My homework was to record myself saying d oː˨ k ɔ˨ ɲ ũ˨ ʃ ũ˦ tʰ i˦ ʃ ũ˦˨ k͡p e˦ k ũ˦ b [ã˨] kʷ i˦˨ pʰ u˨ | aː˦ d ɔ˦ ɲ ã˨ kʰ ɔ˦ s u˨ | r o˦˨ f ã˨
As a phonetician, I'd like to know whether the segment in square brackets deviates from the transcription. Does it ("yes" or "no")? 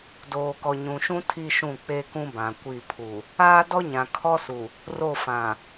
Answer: no